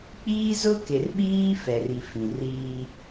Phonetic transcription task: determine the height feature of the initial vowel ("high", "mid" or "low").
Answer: high